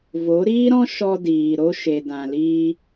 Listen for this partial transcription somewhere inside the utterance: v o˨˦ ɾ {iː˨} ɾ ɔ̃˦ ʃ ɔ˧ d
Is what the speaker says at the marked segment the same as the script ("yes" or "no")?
no